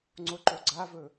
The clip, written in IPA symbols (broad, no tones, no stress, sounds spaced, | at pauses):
ŋ͡ǀ o ǃ o ɡ͡ǀ a v ɵ